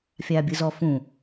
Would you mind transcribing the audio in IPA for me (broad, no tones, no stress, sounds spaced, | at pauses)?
fʲ aː bʲ ɯ z ɔ f ũ